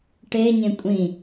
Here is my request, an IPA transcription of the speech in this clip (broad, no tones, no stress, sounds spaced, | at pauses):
ʈ e ɲ ẽ kʷʼ ĩ